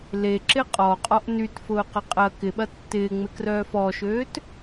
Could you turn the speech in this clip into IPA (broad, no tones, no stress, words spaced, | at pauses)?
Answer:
leǁɪ qʼɔqʼɔʔ nytfʊːqɐ qʼɐ kɪɓɐ tːɪːŋ͡mɪkrœː fɔʃøːt